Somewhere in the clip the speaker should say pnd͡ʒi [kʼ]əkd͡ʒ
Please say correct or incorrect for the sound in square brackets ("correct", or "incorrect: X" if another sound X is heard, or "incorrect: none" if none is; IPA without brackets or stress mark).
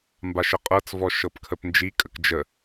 correct